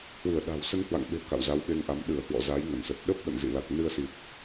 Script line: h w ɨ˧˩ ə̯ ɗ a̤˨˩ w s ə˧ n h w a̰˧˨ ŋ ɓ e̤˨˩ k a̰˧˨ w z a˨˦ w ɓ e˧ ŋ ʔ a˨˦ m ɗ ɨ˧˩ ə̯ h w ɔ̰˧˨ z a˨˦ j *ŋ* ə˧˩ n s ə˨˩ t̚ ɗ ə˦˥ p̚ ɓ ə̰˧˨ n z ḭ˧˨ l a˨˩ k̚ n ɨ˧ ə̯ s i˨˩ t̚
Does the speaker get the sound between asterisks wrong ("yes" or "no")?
no